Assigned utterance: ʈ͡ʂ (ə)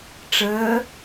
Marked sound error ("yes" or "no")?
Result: yes